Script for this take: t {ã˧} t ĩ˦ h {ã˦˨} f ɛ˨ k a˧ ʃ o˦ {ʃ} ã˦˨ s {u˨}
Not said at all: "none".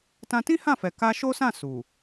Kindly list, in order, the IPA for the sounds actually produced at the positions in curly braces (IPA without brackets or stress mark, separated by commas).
ã˧, ã˦˨, s, u˨